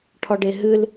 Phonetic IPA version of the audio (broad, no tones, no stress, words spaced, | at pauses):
ʈʰɔɖeɦɨl